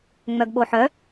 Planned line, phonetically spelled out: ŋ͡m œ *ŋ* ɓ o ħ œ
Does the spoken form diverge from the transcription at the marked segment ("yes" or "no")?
yes